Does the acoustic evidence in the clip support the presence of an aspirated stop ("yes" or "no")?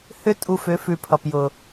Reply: yes